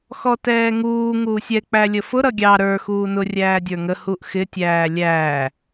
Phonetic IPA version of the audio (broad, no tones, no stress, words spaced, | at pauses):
xɔtɛːŋuː ŋuːsʲɛ k͡pælʲəfʊ ɾʌɡʲɑ ɾə˞ xuːnʊ rʲæːdʲə˞ŋə huʔxɪ tʲæːlʲæː